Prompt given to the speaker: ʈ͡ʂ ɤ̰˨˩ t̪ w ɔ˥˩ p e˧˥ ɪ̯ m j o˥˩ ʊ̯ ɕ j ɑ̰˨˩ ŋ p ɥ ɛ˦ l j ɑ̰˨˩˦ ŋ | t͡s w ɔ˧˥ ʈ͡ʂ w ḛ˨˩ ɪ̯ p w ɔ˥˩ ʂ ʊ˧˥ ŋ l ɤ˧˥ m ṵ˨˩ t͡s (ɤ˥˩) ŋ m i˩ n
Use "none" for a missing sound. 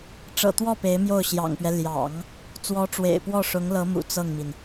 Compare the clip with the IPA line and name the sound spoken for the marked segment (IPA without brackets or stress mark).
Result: ɤ˥˩